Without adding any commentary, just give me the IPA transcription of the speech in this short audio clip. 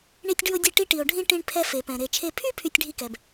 ɳ i˥ tʲ ɖ ʉ˥ o̯ dʲ ɛ˥ ʈ i˥ ʈ i˧ o̯ ɖʱ ĩ˥ ʈ ĩ˥ ɳ pʰ ɛ˥ f e˧ p ɛ̃˧ ɾ e˧ t͡ʃʰ e˧ pʰ y˥ pʰ y˥ tʲ ɖʱ i˥ k ɛ˧ b

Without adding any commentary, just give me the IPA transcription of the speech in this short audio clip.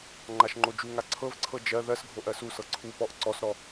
ŋ͡ǃ a ʃ ŋ͡ǃ o d͡ʒ u ŋ a ǀʰ ɤ v ǀʰ ɤ d͡ʒ ɜ ð ɜ s ɡʱ o ʔ ɜ s u s ɤ ǀʰ u p ɔ ʔ ǀ ɔ s ɾ ɔ

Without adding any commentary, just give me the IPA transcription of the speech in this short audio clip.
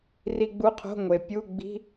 r i˧ ɡ͡b u˧˥˧ qʰ o̤˧˥˧ ŋʷ e˩ pʲ u˧˥˧ ɡ͡b i̤˧˥˧

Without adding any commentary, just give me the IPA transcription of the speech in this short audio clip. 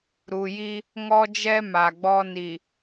ɾ u˨ j i˦ | ŋ ɔ˦ d͡ʒ ɛ˦ m a˨ ɡ͡b ɔ˦ n i˨

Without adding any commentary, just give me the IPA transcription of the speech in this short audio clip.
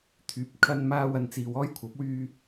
t̪ʰ yː˨˥ p̚ kʰ ɐ˧ n m aː˧ w ɐ˨ n t͡s iː˨ w ɔː˥ j kʷʰ ɐ˨˥ p̚ w yː˧

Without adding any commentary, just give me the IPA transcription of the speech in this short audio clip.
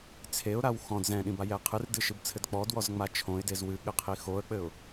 t͡sʰ e ʊ̯ ɾ a w x ɔ̃ d z ɛ̃ ɗ ĩ b a j ɛ qʰ ɨ r d ɨ ʃ ɨ b t͡sʰ ɘ d k͡p ɔ d w ɔ z ŋ͡m a t͡ʃʰ õ ɪ̯ d e z w ɨ ɠ ɘ qʰ i x o ə̯ k͡p ɘ ʊ̯

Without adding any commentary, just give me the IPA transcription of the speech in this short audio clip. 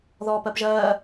ð ɔː p ɜ p ʒ ɜː

